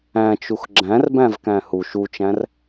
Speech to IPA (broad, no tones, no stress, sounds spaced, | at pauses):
æ̃ t͡ʃ u x ɡ͡ǁ æ̃ r b æ̃ v k æ̃ h u ʃ u t͡ʃ æ̃ r